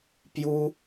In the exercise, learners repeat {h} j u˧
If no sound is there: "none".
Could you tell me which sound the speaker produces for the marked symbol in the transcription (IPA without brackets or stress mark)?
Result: p